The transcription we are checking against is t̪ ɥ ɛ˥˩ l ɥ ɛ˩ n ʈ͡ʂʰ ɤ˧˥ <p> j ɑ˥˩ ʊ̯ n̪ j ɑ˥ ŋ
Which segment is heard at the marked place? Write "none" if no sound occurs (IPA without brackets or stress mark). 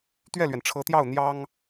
t̪